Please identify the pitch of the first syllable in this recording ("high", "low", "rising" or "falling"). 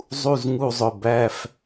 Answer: falling